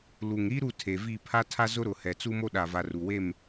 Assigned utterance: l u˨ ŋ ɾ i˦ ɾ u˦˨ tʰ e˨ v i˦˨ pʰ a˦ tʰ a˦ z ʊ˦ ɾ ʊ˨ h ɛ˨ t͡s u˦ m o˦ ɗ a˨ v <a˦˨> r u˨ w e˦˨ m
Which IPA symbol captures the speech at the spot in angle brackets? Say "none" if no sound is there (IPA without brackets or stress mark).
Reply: a˨